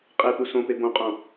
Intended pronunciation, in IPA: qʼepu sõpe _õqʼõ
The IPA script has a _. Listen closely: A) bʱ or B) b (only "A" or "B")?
B